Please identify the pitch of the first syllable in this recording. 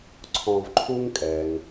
low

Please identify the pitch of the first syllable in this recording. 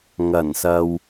low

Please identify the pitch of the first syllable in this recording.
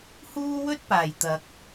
high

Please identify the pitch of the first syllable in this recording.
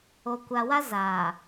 low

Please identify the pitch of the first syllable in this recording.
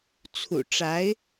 low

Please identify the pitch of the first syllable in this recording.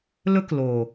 high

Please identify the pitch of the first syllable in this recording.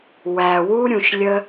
low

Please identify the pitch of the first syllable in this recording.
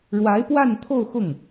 rising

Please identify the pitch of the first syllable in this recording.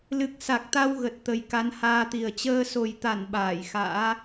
low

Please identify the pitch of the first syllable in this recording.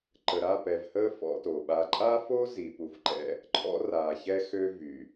low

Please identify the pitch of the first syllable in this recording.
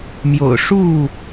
low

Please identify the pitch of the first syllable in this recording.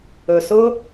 low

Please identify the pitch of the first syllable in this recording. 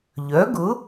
rising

